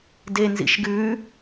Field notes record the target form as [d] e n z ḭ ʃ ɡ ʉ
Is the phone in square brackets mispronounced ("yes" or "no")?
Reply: no